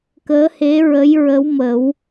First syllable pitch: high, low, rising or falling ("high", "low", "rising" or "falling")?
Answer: rising